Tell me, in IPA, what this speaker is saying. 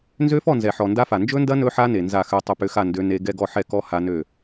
n z ø˦˥ f ɔ˥˨ n z ɛ˨ ħ ɔ˨ n d a˦˥ f a˨ n d͡ʒ ɵ˦˥ n d ɐ˦˥ n ɵ˦˥ ħ a˦˥ n e˨ n z a˥˨ x ø˦˥ tˤ ʏ˦˥ p ʏ˧˥˧ x a˥˨ n d ø˦˥ n e˦˥ ɡ ɛ˧˥˧ ɡ ɔ˥˨ ħ ɛ˥˨ k ɔ˦˥ h a˦˥ n ø˥˨

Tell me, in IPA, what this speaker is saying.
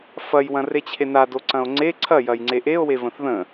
f ɐ j w ɐ̃ r e t͡ɕʰ e n a d o ǀ ɐ̃ o̯ ŋ͡ǀ e ǀʰ ɐ j ɐ j ŋ͡ǀ e ʔ e o̯ w e v ə̃ θ ð ə̃

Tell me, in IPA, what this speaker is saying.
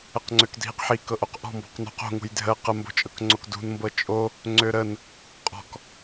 ə q ŋ͡ǀ ø k dʱ i q ħ i k ɤ ʔ o q ʔ ɔ̤ m b ɔ̤ q n ṳ q o̤ ŋ ṳ j dʱ ə q ə m b o̤ t͡ʃʼ ɤ k ŋ͡ǀ o k d ṳ n m b ɤ t͡ʃʼ o | ŋ͡ǀ ø ɾ ə n | qʼ ɔ̤ k

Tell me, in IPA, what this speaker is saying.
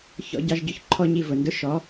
ç ɔ̰˦ ɟ ɑ˦ ʒ ɟ ʊ˦ ç ǃʰ ɔ˦˨ ɲ i˦˨ v ʊ˩ n d ʊ˦ ʃ ɔ˨˥

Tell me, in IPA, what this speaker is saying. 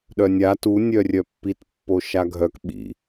ɗ œ nʲ a t u nʲ œ rʲ œ pː i t pː o ʃ a ɡʱ œ k ɓ ḭ

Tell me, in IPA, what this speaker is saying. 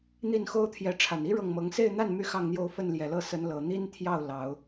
n̪ i˥˩ n x o˥ ʊ̯ t̪ʰ j ɛ˧˥ ʈ͡ʂʰ a˨˩ n i˥ ɻ ɤ˥˩ ŋ m ɤ˧˥ ŋ s e˥˧ ɪ̯ n̪ a˥˩ n m y˥ x ɑ˥˧ ŋ n̪ j o˥˧ ʊ̯ f ə˥˩ n l j ɛ˨˩ l ɤ˥˩ s ə˧˥ n l ɤ˨˩ n̪ i˥ n t̪ʰ j ɑ˥˩ ʊ̯ l ɑ˨˩˦ ʊ̯

